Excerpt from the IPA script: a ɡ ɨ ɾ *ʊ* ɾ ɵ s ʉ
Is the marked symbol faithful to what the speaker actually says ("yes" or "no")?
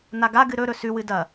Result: no